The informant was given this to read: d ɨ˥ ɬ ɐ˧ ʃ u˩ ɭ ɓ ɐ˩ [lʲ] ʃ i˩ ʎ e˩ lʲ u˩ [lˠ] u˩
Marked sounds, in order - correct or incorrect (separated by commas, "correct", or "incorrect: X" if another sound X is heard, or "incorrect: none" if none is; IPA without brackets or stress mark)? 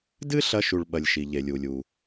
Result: correct, incorrect: lʲ